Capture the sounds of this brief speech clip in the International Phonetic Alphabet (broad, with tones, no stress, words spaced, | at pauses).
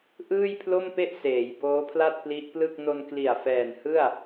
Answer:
ʔɯː˥˩jpʰlo˥˩mpe˥˩ʔ seː˩˦jboː˦˥pʰla˥˩t̚ pli˦˥ʔplɯ˥˩k̚ no˧nkli˨˩a̯ fɛː˨˩n hɯ˥˩a̯